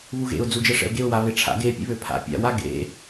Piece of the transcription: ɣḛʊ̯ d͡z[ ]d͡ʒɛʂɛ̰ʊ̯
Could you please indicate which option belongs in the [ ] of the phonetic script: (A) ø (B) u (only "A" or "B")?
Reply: B